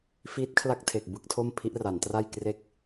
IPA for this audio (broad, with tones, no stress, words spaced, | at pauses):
fiː˦˥t̚kʰla˥˩k̚tʰe˨˩k̚ bɯ˥˩k̚tʰo˥˩m pʰi˦˥ʔ ra˩˦ntra˥˩jkre˥˩k̚